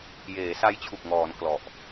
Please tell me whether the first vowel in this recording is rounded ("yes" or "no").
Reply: no